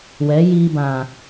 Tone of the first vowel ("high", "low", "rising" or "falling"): rising